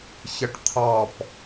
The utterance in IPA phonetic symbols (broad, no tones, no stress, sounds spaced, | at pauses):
ç ə ʈ t̪ʰ ɑ p